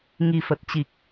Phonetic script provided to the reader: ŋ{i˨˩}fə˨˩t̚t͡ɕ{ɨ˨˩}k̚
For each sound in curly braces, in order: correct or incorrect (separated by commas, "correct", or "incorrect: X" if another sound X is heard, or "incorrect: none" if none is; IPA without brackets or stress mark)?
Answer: correct, incorrect: i˨˩